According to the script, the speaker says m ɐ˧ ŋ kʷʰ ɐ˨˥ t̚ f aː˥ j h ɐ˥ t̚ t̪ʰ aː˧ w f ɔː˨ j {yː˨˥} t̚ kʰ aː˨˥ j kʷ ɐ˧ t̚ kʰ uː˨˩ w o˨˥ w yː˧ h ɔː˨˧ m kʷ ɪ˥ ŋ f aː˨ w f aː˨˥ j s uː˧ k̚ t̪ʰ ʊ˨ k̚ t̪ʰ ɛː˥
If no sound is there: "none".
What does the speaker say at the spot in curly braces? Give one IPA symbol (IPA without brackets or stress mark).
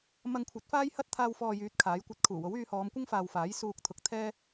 yː˨˥